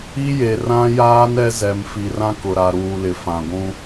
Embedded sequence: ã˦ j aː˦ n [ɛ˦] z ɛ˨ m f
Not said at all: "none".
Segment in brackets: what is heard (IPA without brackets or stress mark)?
ɛ˦